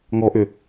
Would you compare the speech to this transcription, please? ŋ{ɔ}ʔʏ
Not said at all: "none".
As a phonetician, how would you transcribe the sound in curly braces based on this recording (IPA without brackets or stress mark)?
ɔ